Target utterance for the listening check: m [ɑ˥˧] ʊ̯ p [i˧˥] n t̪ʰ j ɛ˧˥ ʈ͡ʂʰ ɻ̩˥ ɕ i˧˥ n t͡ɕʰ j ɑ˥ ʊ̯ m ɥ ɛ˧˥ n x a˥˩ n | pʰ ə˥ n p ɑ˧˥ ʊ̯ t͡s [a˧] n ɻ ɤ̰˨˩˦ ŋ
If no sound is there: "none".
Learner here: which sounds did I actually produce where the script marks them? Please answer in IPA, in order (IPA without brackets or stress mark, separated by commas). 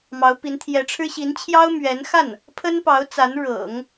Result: ɑ˧˥, i˧˥, a˧˥